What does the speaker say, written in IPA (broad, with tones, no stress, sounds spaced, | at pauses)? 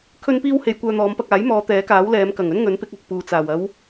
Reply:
kʰ ɵ˧ n p iː˧ w h e˨ j kʷ œː˧ n̪ ɔː˨˧ m p ɐ˧ k̚ aː˨˥ j m ɔː˨˧ t̪ ɛː˨˥ k aː˨˥ w l ɛː˨˧ m k ɐ˨˩ ŋ ɵ˥ n ŋ ɵ˨˥ n p ɪ˨˥ k̚ ɐ˨ k̚ p uː˨ t͡s aː˨˩ w ɐ˨˧ w